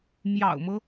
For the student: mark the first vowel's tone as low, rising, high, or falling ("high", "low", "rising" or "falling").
low